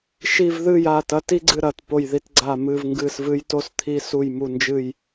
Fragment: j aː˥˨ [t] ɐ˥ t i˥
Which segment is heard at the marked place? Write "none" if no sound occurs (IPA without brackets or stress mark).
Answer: t